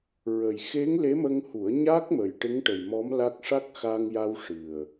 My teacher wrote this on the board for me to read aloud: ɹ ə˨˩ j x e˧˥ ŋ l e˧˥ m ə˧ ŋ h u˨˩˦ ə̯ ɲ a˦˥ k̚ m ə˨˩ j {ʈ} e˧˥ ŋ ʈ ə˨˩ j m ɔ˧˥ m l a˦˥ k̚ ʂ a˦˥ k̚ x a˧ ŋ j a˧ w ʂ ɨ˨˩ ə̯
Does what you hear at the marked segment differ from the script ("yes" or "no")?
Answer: no